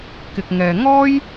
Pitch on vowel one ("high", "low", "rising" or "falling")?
low